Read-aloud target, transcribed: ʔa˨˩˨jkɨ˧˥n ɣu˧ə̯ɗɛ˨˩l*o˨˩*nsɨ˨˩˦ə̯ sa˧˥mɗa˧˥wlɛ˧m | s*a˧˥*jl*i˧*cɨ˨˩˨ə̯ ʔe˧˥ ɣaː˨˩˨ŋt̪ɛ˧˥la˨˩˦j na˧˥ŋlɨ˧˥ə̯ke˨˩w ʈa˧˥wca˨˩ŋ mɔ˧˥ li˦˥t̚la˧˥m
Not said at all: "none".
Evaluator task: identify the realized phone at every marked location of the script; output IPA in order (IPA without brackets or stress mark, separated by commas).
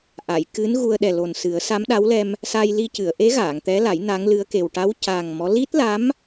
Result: o˨˩, a˧, i˧